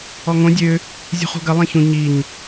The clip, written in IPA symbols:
ɔ ŋ õ dʲ ø | zʲ ṳ χ ṳ ɡ ɐ lˠ ẽ ç ũ ɲ i ɲ

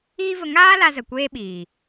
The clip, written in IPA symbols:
iː˦ v ə˧ ŋ aː˦ l a˦ z ə˨ kʷ eː˦ ɓ iː˨

